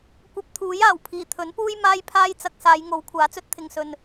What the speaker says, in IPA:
kʷ ɐ˧ p̚ t̪ʰ uː˨˥ j aː˨˩ w pʰ iː˨˩ t̪ʰ ɵ˨˥ n p uː˥ j m aː˥ j pʰ aː˥ j t͡s ɐ˧ k̚ s aː˨˧ j ŋ o˨˥ w kʷʰ aː˨˥ t͡s ɵ˥ t̚ t̪ʰ ɪ˧ ŋ s ɵ˧ n

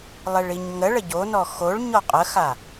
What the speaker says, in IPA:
lˠ e ɭ i ɲ ŋ ə ɭ ə ɟ o n ɔ x o ɭ ɲ ɔ qʼ ə x a

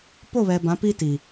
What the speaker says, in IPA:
p o˦˨ β ɛ˨ b ã˨˦ p i˦ t i˨

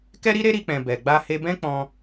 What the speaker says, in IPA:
k ɛ˦ ɾ i˦ ɾ e˦ ɾ i˦ k͡p ɛ̃˧ b ɛ˨ ɡ͡b a˧ h e˧ b ɛ̃˦ k͡p ɔ̃˧

